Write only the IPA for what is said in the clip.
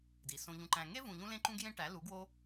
d i˨ s õ˧ ʎ ũ˧ ǃ æ̃˧ ŋ e˦ v ũ˨ ʎ ũ˧ l ẽ˦ ǃ ũ˦ ɡ j ẽ˦ ʈ æ˨˦ l u˨˦ ɡ w o˦

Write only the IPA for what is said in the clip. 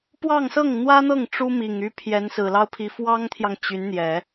p w ɑ˥˧ ŋ s ɤ˥˩ ŋ n̪ w ä˥ n̪ ɤ˥˩ ŋ ʈ͡ʂ u˥ m i˨˩ ŋ y˥ pʰ j ɛ˧˥ n s ɹ̩˨˩ l ɑ˥ ʊ̯ pʰ i˧˥ f w ɑ˥ ŋ t̪ʰ j ɑ˨ ŋ t͡ɕ y˧˥ n n̪ j ɛ˨˩˦

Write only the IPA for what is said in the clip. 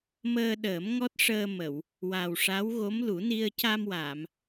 m əː˧ ɗ əː˨˩˦ m ŋ ɔ˦˥ t̚ ʂ əː˧ m ə˨˩˨ w | w a˨˩ w ʂ a˧˥ w ɣ o˧˥ m l u˨˩˦ n i˧ ə̯ c a˧ m w a˨˩˨ m

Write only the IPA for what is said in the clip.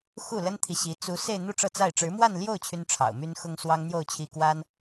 x u˥˩ l ə˥ n t̪ʰ i˨ ɕ i˧˥ t͡s u˧˥ s e˥˧ ɪ̯ n̪ u˥˧ ʈ͡ʂ ɤ˥˧ t͡s a˥˩ ɪ̯ ʈ͡ʂ ɻ̩˧˥ m w a˥˧ n l j o˥˩ ʊ̯ t͡ɕʰ y˥ n ʈ͡ʂʰ ɑ̰˨˩ ʊ̯ m y˥ n x ʊ˥ ŋ s w ɑ˥ ŋ n̪ j o˥˧ ʊ̯ t͡ɕʰ i˥˩ k w a˥ n

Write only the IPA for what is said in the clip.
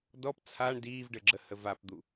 d ɔ p t͡sʰ a ɳ d iː v ɖ ɘ ɡ͡ǁ ə h ə v a p d̪ u

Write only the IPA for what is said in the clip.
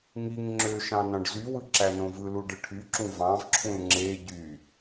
ŋ i ŋ ŋ͡ǁ ø ʃ ɑ̃ n ɑ̃ ɖ z y w ɯ ǁ æ n õ v ɯ l u ɖ ɯ ʈʰ y ǁ ũ v ɑ̃ v ǁʰ ũ l ŋ͡ǁ e ɟ y

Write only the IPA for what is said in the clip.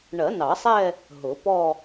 ɳ ɜ˨˩˦ n ɑ˨˩˦ sˤ ɛ˥˧ | ɦ ʊ˨˩˦ p ɔ˥˧

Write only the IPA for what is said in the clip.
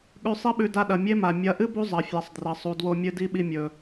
ɠ ʉ˧ sˤ i˦ ɓ ʉ˧ d a˧ ɗ ɐ˨ mʲ e˦ m a˨ mʲ ɐ˨˦ ʔ ɨ˦ b u˦ zˤ ɐ˨ fʲ a˨ sˤ d r ɐ˨ sˤ u˨ d w o˧ mʲ ɨ˧ d i˦ ɓ i˧ mʲ ɵ˨

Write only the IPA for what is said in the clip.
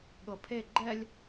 ɠ ɤ pʰ e ɡ͡ǃ ɛ lʲ

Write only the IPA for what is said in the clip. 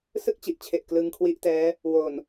s ɯ˥˩ k̚ t͡ɕ i˨˩ ʔ t͡ɕʰ e˨˩ ʔ k l ɯ˧ ŋ kʰ w i˦˥ ʔ t ɛː˦˥ | w o˨˩ n

